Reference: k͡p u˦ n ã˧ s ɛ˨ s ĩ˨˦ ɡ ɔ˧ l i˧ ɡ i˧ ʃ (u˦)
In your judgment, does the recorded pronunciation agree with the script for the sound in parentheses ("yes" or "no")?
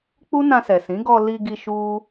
yes